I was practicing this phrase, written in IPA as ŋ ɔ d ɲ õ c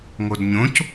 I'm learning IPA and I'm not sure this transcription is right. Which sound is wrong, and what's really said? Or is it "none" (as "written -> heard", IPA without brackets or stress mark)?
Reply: ɔ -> o